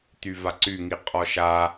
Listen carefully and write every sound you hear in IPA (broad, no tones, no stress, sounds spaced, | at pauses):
t̪ y v a ǀ y ŋ i qʼ ɔ ʃ a